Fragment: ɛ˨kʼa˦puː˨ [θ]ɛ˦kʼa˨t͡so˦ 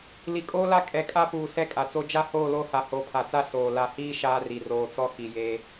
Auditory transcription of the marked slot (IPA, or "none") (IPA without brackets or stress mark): s